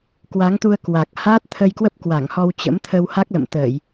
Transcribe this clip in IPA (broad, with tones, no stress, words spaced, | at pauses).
kwa˨˦ŋt̪u˧ə̯ kwa˨˩k̚ haː˦˥t̚t̪ʰə˧jkwə˦˥p̚ kwa˧˩ŋ hɔ˧wt͡ɕə̰˧˥mt̪ʰə˧w ha˦˥k̚lə̰˧˨mt̪əː˧˩˨j